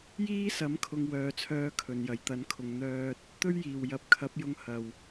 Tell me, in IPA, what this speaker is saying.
jiː˥sɐ˨˥mkʰʊ˨ŋ wœː˨t͡sʰœː˧ kʰɵ˨˩njɐ˨˩jt̪ɐ˨˥nkʰʊ˨ŋ n̪œː˧t̚ | t̪ɵ˥ɥjiː˨˩w jɐ˨˥p̚kʰɐ˨˥p̚jʊ˧ŋ hɐ˨˩w

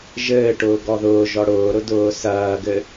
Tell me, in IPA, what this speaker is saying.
ʒɘːʈʊː ɡɔðʊːʒɔ ɽʊːɾʊ dʊːsɐːɡɘ

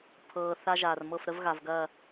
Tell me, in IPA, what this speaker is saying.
pʰɤː˨ θa˦ʒaː˨r mɤ˦˨fɾə˦vɣa˨vɡɐ˦˨

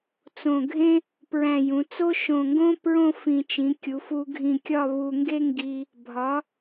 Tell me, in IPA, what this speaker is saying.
t͡sõ˧˩ɡʱẽ˥ | pɹæ̃˧˩jũ˩˧t͡so˥ ʃõ˧˩ŋɡõ˥ pɹõ˥fĩ˧˩ t͡ʃĩ˩˧kʲu˩˧fu˧ɡʱĩ˧˩ kʲɒ˥˧ βu˧ŋɡe˥ŋɡi˧ | bʱɒ˩˧

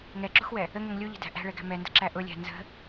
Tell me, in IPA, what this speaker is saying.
ŋɛǁṳxwɛ | əŋɛŋ lʲuʎə̤dæ̤ ʔæ̤ɭɛɡæ̤ mɛndə̤ǁæ ʔʊlʲæ̤ nzə̤

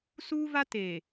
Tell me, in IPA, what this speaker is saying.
suː˦ va˦ teː˨

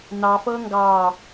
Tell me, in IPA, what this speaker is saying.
nɑfɤ ŋɡɑː

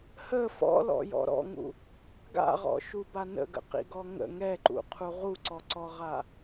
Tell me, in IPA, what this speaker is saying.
hə fɔ̰lɔ̰jɔ̰ ɾɔ̰ŋṵ | ɡa̰ʁɔ̰ʃuba nə̰ɡə̰qḭɡɔ ŋə̰ ŋɛǃṵqʰu ʁuǀɔǀɔʁa

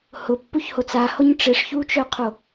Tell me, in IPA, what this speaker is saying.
hʊpːuçhot͡s ahoɲ ʈ͡ʂɪʂçut͡ʃœqʰo

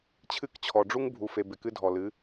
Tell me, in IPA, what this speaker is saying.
t͡ɕʰɨ˦˨kt͡ɕʰɔ˨ɖ͡ʐu˦ŋ bʱu˨fe˨ bɪ˨kɨ˦dʱɔ˨ lɨ˨˦

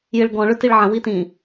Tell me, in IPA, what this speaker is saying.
jɪɭɡɔ̃ ɭʏtiɭʕə̃ witĩ

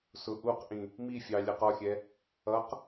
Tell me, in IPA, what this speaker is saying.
sʊʔuqʔĩ | mifʲɑ lʲɛqɔxʲɛ | ʌq

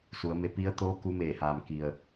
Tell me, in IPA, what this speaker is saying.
su˩˧ə̯me˧ pi˧˥ə̯ t̪oː˧˥ ku˧˥meː˧˩haː˩m ki˩ə̯

